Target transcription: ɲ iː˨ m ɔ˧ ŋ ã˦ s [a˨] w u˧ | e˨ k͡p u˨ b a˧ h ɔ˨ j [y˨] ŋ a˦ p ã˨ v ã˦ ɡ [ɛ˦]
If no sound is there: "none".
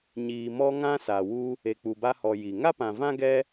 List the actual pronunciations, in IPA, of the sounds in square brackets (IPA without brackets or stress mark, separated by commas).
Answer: a˨, i˨, ɛ˦